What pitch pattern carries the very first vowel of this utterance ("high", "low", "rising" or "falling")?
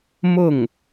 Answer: falling